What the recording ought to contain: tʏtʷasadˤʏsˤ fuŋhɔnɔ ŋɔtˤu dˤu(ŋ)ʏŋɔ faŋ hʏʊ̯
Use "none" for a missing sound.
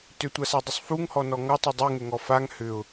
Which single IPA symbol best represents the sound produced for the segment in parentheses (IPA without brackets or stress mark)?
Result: ŋ